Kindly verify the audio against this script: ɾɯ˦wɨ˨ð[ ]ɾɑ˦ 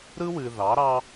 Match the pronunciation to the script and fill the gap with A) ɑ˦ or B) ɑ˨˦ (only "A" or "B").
B